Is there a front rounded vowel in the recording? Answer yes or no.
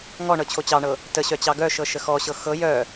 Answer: yes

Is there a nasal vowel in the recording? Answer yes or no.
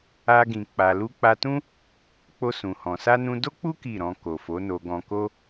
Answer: yes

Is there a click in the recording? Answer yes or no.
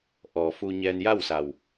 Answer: no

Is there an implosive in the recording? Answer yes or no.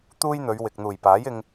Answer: no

